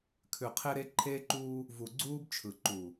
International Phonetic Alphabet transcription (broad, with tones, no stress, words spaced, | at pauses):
kʰʉ˨qʰe˦ɾe˦ ǃʰeː˦ǃuː˦ | vu˨ɡ͡ǀuː˦bt͡ʃʰɯ˨ ǃu˨